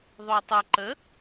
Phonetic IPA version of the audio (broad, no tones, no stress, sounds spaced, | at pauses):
ðˤ o tˤ ə ǃ ə